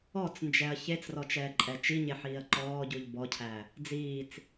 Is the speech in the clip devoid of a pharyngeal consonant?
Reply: no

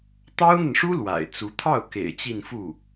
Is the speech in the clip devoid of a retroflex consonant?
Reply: no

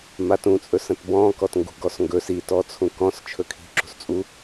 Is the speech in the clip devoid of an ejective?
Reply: no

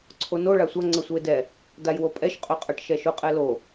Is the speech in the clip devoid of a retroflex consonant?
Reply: no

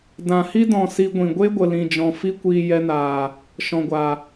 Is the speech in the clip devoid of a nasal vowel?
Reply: no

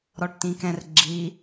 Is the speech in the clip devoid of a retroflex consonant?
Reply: no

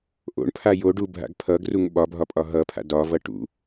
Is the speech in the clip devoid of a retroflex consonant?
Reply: no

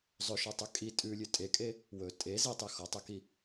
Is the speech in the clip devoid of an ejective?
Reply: no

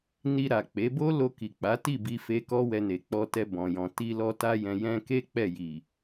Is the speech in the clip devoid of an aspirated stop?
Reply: yes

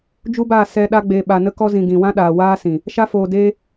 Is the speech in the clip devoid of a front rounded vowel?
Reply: yes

